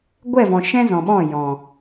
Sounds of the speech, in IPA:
ɡʷɛ˦˨vɔ̃˨ ʃɛ̃˧ zɔ̃˨ɓɔ̃˦˨ jɔ̃˨

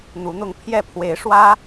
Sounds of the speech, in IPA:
n̪u˧˥n̪ʊ˥˧ŋ pʰjɛ˥˩pʰwe˧˥ɪ̯ ʂwä˥

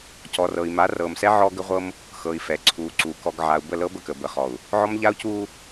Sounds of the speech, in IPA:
cɔ˨rɤ˨i̯ ma˨˦rɤː˨msɛ˦ ʕɔ˦ɡə˦ʁʷɤ˦m | xɤ˨i̯fɛ˨ ǀʰuː˨ǀuː˨ kɔ˨ɡ ʕa˨u̯bə˦˨ lɤ˦bə˦˨kə˨ bə˨χɔ˨u̯ | ʕɔ˦mʎa˦u̯cuː˦

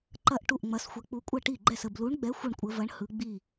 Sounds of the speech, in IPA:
ǃɐ˥˩ʔ ʈu˥˩ʔŋ͡mɐ˨˥sxʷɐ˨˥ k͡pu˨˥kʷʼɐ˥˩ʈi˥˩ɡ͡ǃɛ˥˩s ə˥˩blu˨˥ɳɡ͡bɛ˨˥ xʷɯ˥˩ɳkʷʼə˨˥ vɐ˨˥ɳ hɯ˨˥ ɡ͡bi˥˩

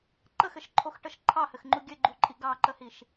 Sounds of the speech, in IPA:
ǃəxɘʃǃʰoxʈəʃ ǃʰɑhɘxŋ͡ǃu ɡʲɘɡ͡ǃuǃʼi ɡɑǃəhiʃ

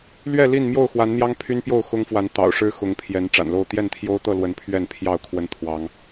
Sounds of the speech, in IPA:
lɥɛ˥˨li˥˨n mjo˥˨ʊ̯xwa˨˦nn̪jɑ˦ŋ pʰy˦npjo˥˨ʊ̯ xʊ˦ŋfwa˨˦n t̪ɑ̰˨˩ʊ̯ʂɻ̩˦ xʊ˨˦ŋpʰjɛ˨˦n ʈ͡ʂa̰˨˩nlo˥˨ʊ̯ t̪jɛ˥˨nt̪ʰjo˦ʊ̯t̪ɤ˥˨ lwə˨˦n pʰɥɛ˥˨npʰjɑ˥˨ʊ̯ kʰwə˦nt̪ʰwɑ˨˦ŋ

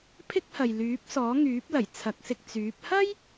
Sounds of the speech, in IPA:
pʰɪ˥k̚hɐ˨j lyː˨˥p̚sɔː˨˥ŋyː˨˥p̚lɐ˨˩j t͡sʰɐ˨˥k̚sɪ˧k̚ t͡syː˨˥p̚ hɐ˥j

